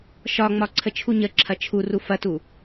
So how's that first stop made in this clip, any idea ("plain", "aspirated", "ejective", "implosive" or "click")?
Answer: click